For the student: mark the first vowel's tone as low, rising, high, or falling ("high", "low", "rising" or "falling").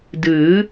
rising